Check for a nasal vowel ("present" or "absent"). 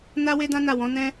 present